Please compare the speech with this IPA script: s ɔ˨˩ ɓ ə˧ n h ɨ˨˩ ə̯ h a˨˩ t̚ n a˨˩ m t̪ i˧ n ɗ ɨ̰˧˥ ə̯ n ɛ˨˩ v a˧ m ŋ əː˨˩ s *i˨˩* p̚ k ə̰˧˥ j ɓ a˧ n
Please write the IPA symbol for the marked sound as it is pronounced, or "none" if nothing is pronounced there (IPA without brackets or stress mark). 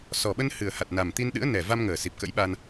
i˨˩